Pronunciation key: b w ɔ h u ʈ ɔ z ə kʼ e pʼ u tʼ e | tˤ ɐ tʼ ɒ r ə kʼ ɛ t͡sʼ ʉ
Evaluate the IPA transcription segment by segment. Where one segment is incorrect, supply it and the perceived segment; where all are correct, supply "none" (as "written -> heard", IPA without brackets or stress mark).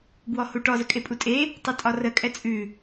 none